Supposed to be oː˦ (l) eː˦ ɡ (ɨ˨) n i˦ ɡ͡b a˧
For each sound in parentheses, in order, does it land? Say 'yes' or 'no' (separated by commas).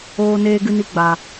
no, no